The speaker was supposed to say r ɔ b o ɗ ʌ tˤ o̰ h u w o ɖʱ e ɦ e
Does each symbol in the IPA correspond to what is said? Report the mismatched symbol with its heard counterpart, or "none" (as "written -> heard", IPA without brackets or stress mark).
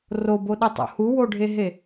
ɔ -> o